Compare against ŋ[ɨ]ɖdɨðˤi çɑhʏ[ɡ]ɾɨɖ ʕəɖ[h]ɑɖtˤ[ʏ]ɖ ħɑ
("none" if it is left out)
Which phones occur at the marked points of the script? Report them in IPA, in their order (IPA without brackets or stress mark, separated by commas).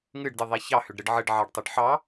ɨ, ɖ, ʕ, ʏ